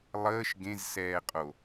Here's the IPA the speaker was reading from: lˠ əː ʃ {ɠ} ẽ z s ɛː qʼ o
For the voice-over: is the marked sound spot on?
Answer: no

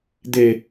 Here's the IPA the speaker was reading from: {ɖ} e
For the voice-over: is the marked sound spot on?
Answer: no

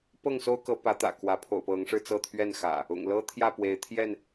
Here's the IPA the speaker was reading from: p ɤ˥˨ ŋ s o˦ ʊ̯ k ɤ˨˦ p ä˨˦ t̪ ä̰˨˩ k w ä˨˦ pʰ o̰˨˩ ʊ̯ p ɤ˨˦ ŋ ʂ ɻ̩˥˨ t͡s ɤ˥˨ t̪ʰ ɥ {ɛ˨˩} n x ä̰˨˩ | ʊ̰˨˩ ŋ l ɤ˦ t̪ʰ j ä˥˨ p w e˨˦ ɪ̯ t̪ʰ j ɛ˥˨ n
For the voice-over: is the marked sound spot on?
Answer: no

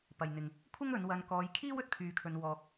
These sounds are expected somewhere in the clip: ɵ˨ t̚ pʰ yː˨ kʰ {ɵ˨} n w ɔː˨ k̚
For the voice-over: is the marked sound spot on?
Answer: yes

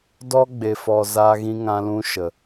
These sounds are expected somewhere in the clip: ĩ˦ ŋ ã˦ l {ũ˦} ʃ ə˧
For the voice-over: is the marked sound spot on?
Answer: yes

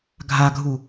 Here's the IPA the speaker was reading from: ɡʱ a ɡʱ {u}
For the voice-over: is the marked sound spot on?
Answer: yes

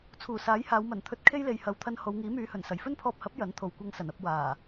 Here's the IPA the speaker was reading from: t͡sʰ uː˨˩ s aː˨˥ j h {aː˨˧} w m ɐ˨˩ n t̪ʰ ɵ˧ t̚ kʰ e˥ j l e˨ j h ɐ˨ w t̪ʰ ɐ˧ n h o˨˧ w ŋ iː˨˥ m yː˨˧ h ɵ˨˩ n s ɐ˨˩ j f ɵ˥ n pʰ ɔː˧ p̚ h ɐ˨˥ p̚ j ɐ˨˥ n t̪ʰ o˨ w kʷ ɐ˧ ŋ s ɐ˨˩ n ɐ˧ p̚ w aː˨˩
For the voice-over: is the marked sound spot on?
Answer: yes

